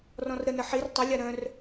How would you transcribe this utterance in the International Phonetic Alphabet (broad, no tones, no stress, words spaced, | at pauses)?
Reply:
rɔ̃rɾənə ħir tˤəlʲa ɾœ̃r